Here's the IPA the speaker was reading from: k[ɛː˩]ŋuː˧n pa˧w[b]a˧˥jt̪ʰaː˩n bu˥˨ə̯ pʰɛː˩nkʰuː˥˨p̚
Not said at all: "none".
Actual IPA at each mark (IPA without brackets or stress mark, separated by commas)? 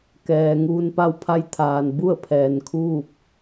ɛː˩, pʰ